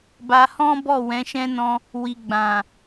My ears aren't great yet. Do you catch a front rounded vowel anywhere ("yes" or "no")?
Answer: no